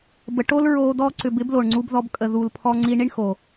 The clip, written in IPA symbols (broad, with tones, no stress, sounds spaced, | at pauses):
b ə˨ ʈ o˦ l ɹ o˧ d̪ ɔ˦ ǀ ʏ˧ b ɪ˦ b l o˨ ɳ ŋ͡ǀ u˧ b ð ɔ˧ b kʼ ə˨ ð u˨ l pʰ ɔ˧ ŋ͡ǀ i˧ ɳ i˦ ɳ x o˨